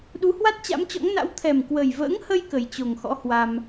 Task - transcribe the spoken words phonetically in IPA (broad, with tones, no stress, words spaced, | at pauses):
ɗu˨˦hwa˦˥t̚ t͡ɕa̰˧˥mt͡ɕɔ̰˧˥ŋna̰˧˥w t̪ʰɛ˨˩mkwə˨˩jvə̰ː˧˥ŋhə˧j kə˨˩jt͡ɕo˨˩ŋ xɔ̰˧˥ hwa˧m